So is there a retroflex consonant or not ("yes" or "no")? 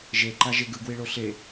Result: yes